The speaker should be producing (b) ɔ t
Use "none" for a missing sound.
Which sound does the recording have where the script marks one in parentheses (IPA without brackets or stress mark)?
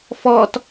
f